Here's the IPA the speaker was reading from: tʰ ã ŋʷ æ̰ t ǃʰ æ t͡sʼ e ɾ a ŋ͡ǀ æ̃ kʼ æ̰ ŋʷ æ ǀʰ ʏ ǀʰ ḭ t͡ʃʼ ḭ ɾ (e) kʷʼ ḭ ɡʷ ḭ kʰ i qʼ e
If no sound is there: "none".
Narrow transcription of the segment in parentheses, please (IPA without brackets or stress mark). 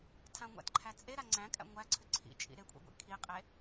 e